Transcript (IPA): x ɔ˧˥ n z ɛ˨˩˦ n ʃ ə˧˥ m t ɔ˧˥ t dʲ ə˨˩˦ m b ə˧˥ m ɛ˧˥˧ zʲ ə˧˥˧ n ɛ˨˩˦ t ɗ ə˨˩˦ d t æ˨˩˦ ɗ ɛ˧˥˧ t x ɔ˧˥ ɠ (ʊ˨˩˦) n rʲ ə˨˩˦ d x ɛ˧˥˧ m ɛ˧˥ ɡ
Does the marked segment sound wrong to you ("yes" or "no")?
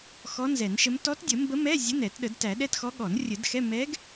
yes